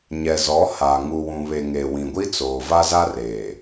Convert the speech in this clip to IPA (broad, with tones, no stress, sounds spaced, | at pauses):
ɲ ɛ˨ z ɔ˨˦ h a˨ ŋ u˨ w ũ˨ β e˨ ŋ e˨ w ĩ˨ ɡʷ i˦ t͡s oː˨ v a˦ z a˦ r eː˨